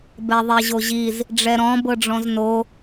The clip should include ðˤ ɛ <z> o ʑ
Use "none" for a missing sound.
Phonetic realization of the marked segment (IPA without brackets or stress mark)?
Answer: ʑ